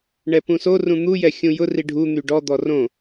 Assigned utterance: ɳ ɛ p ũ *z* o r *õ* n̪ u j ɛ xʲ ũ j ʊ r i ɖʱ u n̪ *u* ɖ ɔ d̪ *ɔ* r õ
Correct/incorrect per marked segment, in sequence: incorrect: s, incorrect: ũ, incorrect: y, correct

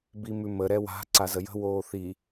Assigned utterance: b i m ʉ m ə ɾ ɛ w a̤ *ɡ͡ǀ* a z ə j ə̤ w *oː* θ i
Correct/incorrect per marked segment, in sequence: incorrect: ǀ, correct

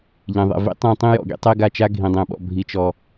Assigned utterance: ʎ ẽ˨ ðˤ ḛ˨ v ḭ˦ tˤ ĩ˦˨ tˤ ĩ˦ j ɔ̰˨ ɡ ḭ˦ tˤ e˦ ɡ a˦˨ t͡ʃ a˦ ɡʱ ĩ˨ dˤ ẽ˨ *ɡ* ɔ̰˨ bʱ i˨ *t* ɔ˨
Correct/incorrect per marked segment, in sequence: incorrect: ɓ, incorrect: t͡ʃ

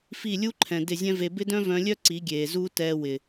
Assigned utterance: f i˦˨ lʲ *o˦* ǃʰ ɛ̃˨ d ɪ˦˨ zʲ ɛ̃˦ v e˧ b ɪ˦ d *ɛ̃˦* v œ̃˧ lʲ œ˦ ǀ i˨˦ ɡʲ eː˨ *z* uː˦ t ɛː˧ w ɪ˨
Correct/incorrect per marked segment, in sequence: incorrect: u˦, incorrect: œ̃˦, correct

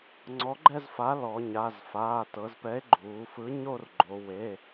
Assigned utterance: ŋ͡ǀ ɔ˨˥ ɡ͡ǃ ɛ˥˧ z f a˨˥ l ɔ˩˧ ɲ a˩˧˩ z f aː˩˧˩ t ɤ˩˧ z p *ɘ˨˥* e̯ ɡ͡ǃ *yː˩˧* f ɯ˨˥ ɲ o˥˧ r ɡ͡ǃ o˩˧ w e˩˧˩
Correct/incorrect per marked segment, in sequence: incorrect: ɛ˨˥, incorrect: uː˩˧

